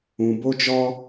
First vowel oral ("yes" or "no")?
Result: no